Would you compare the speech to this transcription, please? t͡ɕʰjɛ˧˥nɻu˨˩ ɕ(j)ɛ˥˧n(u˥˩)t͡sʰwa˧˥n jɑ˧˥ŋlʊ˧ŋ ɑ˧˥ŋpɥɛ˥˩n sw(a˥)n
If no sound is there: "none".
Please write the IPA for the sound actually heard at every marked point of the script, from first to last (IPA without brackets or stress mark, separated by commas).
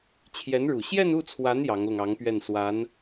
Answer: j, u˥˩, a˧˥